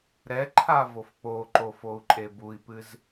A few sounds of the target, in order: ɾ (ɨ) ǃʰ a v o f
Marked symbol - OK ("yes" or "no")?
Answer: no